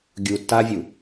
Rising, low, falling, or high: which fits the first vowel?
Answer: low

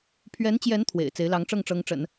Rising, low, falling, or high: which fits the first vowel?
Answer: rising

